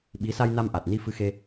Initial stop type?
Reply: implosive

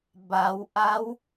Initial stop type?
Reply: plain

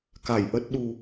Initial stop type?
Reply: plain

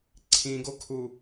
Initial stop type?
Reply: click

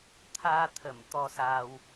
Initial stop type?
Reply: aspirated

